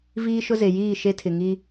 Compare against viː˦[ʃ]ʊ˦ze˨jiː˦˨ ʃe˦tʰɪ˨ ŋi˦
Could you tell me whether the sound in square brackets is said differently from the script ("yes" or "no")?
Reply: no